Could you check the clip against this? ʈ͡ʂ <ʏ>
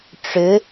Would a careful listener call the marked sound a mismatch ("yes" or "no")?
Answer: no